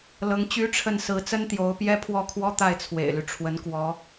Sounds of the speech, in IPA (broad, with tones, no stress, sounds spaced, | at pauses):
l ɤ˧˥ ŋ t͡ɕ y˥ ʈ͡ʂʰ ə˥˩ n s ɹ̩˧˥ t͡s ə˥ n t̪ j o˧˥ ʊ̯ p j ɛ˥ pʰ w ɔ˥˩ kʰ w ɔ˥ t̪ a˥˩ ɪ̯ t͡sʰ w ḛ˨˩ ɪ̯ l y˦ ʈ͡ʂʰ w ə˧˥ n k w ɔ˧˥